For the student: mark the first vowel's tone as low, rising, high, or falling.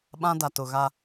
high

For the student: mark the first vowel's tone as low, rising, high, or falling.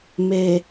low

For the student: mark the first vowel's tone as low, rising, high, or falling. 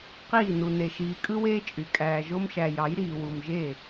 falling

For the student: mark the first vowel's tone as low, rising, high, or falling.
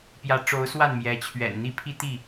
rising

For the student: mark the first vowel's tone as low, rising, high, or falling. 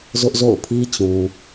high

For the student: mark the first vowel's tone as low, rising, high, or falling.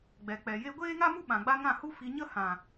low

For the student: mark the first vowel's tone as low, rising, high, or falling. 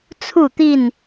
falling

